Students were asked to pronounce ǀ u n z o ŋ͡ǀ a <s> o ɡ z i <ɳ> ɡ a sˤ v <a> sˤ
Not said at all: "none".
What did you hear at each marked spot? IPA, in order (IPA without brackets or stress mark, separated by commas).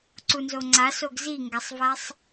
s, ŋ, a